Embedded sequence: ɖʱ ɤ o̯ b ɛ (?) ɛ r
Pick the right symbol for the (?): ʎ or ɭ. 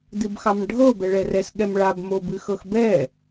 ɭ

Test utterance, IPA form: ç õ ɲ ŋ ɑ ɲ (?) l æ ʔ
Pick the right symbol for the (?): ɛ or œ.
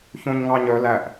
œ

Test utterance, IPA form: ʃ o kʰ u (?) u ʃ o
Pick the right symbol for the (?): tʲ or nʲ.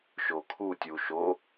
tʲ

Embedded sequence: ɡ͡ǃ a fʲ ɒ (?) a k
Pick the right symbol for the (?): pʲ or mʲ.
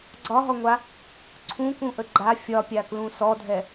pʲ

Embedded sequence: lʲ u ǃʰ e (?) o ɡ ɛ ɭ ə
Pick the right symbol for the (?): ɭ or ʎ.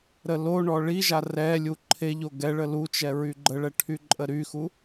ʎ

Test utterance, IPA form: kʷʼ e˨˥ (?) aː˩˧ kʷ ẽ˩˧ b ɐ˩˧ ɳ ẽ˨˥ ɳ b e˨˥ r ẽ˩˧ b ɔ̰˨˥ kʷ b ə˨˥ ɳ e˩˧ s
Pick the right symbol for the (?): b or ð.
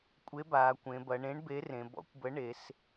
b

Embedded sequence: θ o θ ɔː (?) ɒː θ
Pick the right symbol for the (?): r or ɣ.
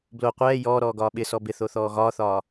ɣ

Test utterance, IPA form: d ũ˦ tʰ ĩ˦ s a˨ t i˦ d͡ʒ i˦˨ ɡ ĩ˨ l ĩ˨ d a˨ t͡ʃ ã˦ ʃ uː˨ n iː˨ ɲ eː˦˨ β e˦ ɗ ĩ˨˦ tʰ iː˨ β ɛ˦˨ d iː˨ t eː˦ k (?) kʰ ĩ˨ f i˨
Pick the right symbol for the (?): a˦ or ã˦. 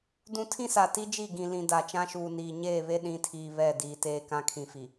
ã˦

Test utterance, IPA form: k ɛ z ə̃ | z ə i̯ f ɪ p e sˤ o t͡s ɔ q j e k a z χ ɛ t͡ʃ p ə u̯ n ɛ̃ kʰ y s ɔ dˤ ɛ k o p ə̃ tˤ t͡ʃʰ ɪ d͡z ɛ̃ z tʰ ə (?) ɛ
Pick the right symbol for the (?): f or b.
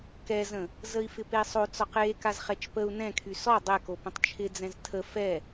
f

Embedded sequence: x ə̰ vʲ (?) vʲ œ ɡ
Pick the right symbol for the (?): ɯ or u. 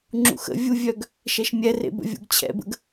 u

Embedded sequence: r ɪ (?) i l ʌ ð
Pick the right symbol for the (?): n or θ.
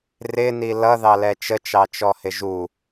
n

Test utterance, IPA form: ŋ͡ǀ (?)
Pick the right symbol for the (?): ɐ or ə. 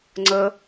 ə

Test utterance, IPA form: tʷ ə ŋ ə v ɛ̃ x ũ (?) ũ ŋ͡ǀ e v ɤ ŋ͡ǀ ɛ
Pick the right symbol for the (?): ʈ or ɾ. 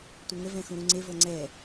ɾ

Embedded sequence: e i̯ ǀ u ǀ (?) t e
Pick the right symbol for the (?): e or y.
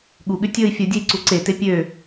e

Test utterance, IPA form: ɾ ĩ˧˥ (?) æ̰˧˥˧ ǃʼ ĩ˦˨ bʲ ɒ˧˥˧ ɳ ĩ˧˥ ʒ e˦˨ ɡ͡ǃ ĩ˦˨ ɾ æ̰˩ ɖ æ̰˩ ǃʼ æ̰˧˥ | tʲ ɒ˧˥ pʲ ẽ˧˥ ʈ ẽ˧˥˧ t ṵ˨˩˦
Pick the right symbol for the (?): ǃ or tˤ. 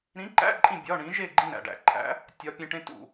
ǃ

